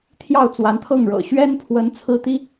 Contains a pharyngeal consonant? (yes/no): no